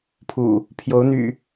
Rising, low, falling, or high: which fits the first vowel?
low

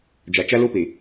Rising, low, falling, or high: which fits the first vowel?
low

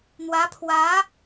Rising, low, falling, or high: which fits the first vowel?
rising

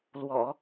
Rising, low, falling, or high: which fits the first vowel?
low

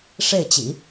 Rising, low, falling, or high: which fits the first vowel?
falling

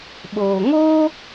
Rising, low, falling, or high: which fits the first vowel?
low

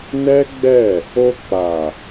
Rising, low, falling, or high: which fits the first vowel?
high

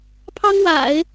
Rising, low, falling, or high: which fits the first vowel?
high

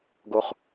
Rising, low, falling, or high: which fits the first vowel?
high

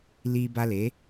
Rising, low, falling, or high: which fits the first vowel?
high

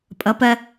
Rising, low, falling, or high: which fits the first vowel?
rising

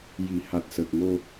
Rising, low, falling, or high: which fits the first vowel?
low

